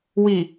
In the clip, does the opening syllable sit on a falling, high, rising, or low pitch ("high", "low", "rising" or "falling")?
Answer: low